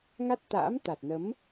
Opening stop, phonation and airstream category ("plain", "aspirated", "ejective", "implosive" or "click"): plain